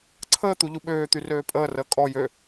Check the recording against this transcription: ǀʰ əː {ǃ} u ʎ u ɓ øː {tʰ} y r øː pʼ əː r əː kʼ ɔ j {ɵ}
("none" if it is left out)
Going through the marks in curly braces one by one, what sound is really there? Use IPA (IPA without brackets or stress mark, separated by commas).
t̪, t̪, ø